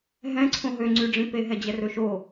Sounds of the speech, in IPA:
ɦ ɛ̃ ǀʰ õ ɦ ø ŋ͡ǀ y ɖ͡ʐ ĩ p e ɦ ɛ d͡ʑ ɛ r ɵ ʃ o

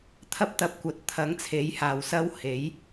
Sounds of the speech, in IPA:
t̪ʰ ɐ˥ p̚ t̪ ɐ˧ p̚ kʷ ɐ˨˥ t̚ t̪ʰ ɐ˨˥ ŋ t͡sʰ e˨˥ j h aː˨ w s ɐ˥ w h e˨˥ j

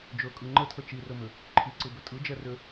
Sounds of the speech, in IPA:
d͡ʒ ɵ kʼ ɯ ŋ͡ǃ ə tʰ ə t͡ʃ i r ɵ m ʏ | ǃʰ i ǀ ɯ b ʏ tʼ ɯ d͡ʒ ɛ r ʏ

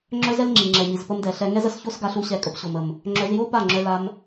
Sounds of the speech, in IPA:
ŋ͡ǁ œ˦ z ɛ˦ l ŋ͡ǁ i˨ ŋ͡ǁ ɛ˨ ɲ i˨ z p ə˧ m d ɛ˨ ɬ ɛ˧ ŋ ɛ˦ z ə˧ s ç o˦ s ɡ a˧ ɬ u˧ ɕ ɛ˧ kʼ ə˧ p ɕ o˨ m ə˨ m | ŋ͡ǁ œ˧ z j o˦ p a˦˨ ŋ͡ǁ œ˧ l a˧ m

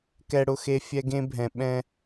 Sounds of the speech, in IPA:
k ɛ˨ ɽ ʊ˨ x e˨ fʲ ɛ˦ ɡ ẽ˦ bʱ ɛ̃˨ ɓ ɛ̃˦

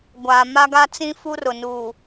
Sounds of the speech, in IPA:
ɡʷ aː˨ m a˦ ɡ a˦ t͡s ĩ˦ f u˦ r ʊ˨ n uː˨

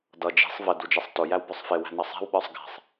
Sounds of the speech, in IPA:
d ʌ d͡ʒ i̤ sˤ v ə d u d͡ʒ ɛ sˤ t ʊ j æ w b ə˞ sˤ f ɪ w æ̤ n ʌ sˤ ɛ̤ w ɓ ə˞ sˤ ɡ æ̤ sˤ

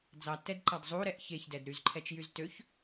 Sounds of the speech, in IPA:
d͡z ɑ tː ɛ d ǃ ɑ d zˤ u ɾ ɛ ʔ ç e ç d ɛ d ɾ y z ǃʰ ɛ t͡ʃ j y z t ø ç

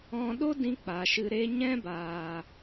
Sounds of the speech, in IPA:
ɔ̃˧ ɗ o˦ d ĩ˧ k͡p a˨ ʃ ɨ˧ ɾ e˦ ɲ ɛ̃˦ b aː˨

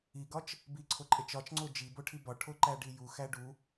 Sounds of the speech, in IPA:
i ɡ ɒ t͡ʃ | b i ǀʰ o ǃʼ e t͡ʃ ɒ t͡ʃ ŋ͡ǀ o d͡ʒ i b o ʈʰ i b ɒ ʈʰ o ǃ æ ɖ i j u x æ ɖ u

